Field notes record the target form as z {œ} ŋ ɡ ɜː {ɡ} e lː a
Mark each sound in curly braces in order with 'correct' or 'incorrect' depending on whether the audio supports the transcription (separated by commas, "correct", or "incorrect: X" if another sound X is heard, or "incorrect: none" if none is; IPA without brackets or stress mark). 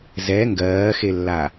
incorrect: ɛ, incorrect: x